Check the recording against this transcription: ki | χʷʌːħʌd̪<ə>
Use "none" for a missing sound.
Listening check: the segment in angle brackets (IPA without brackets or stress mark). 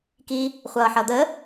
ə